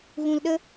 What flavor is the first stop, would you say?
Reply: implosive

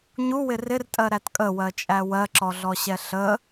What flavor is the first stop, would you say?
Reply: ejective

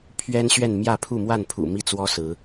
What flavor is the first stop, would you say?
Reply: aspirated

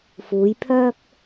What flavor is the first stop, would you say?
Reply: aspirated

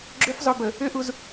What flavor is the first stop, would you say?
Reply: click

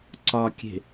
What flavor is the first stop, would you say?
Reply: click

